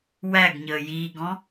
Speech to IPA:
w æ ɡ ɲ əː j iː ɡ ɔ̃

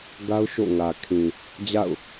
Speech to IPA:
ɡ a˦ ʊ̯ ʃ o̰˦˨ ŋ ä˨ kʰ ĩ˨ | d͡ʑ a̰˦˨ ʊ̯

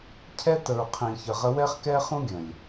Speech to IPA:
cʰ ɛ˦ t ə˨ ɹ qʰ ĩ˨ ç ə˨ ʁ ə˦ w ɛ˦ χ k ɛ˦ χ ũ˦ ɡʲ ə̃˨ lʲ

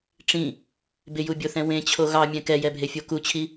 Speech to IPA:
ʈ͡ʂ ĩ | b ɪ j u bʲ o θ ɛ̃ w ẽ t͡ɕʰ o ɣ ɑ mʲ ɛ̃ k ɛ j ɛ bʱ e fʲ o k u t͡ɕʰ i

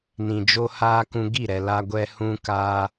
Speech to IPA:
n ĩ˨ d͡ʒ o˦ h aː˦ k ũ˧ ɡ i˦˨ ɾ ɛ˨ l a˧ ɡʷ ɛ˧ h ũ˧ k aː˧

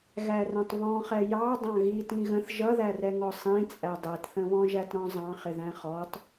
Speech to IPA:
ɣ æ r ɛ̃ tˤ β ɔ̃ χ ɛ j ɑ dˤ ɑ̃ ɣ i t ĩ ɣ ə̃ θ ʒ ʌ ð æ r ɛ ŋ ɔ sˤ ĩ t͡sʼ æ dˤ ɛ t θ ə̃ β ɔ̃ ʒ æ t ɾ ɔ̃ zˤ ɑ̃ χ ɪ ð æ̃ χ ɔ tˤ

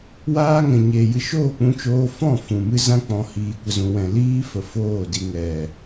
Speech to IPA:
w aː˦ ŋ ɛ̃˨ ɲ eː˨ j ɨ˧ ʃ oː˦˨ k͡p ũ˧ t͡ʃ oː˧ f ɔ̃˦˨ f ũ˨ m ɨ˦ z ã˦ k͡p ɔ̃˧ h iː˨ kʷ ə˨ z ũ˨ w ɛ̃˨ l iː˦ f ə˨ f oː˦˨ d i˧ ŋ ɛ˨

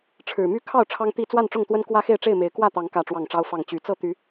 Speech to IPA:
ʈ͡ʂʰ ɻ̩˨˩ m y˥˨ kʰ ɑ˥˨ ʊ̯ ʈ͡ʂʰ ɑ˦ ŋ t̪ i˥˨ t͡s w a˥˨ n ʈ͡ʂ ʊ˥˨ ŋ t̪ w ə˦ n k w ä˦ x e˥˨ ɪ̯ ʈ͡ʂ e˥˨ ɪ̯ m e˨˦ ɪ̯ k w ä˥˨ t̪ ɑ˨˦ ŋ k ä˥˨ ʈ͡ʂ w ɑ˥˨ ŋ ʈ͡ʂ ɑ˦ ʊ̯ f ɑ˥˨ ŋ t͡ɕ y˨˦ t͡s ɤ˥˨ t̪ y˨˦

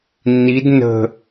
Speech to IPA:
nː i d n ə̤

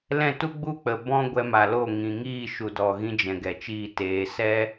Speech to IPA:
l ɛ̃˦˨ t u˦ ɡ͡b u˦ k͡p ə˨ b ɔ̃˦ ɡʷ ɛ˧ m a˨ l o˦˨ ŋ ĩ˨ ŋ iː˦˨ ʃ u˨ d ɔ˨ ɣ ĩ˧ d͡ʒ ɛ̃˨ ɡ ɛ˨ t͡ʃ iː˦˨ t eː˨˦ s ɛ˦

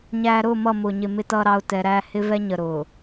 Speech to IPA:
ɲ æː˨ ɾ ʊː˦˨ m ʌ˦˨ m ʊː˨ ɲ ɪ˨ m ɪ˨ t ʌː˨ ɾ ɑ˨ ʊ̯ t ɛ˨ ɾ æː˦ h ɪ˦ v ɛ˦ ɲ ə˨ ɾ ʊː˨

